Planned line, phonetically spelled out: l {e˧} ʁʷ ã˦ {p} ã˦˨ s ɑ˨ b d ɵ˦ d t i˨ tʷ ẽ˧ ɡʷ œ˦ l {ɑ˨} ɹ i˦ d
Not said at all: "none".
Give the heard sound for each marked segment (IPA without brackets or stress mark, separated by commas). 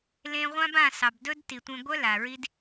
ẽ˧, b, a˨